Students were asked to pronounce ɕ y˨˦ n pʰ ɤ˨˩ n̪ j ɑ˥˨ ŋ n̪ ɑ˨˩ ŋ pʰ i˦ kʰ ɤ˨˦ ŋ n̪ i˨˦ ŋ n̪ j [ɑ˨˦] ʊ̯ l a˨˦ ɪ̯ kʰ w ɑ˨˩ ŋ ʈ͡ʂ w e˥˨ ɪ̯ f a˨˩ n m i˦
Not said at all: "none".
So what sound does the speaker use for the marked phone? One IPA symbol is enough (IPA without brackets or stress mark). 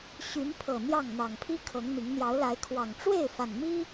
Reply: ɑ˨˦